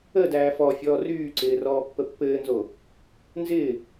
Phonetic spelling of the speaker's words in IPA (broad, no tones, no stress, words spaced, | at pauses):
ədæː fɔfʲɔː ryːǀɪː rɔːpːəpːɘːnzo | nzɪː